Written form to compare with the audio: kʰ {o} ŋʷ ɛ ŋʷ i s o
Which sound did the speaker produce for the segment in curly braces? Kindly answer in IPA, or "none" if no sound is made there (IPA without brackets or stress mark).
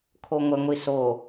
o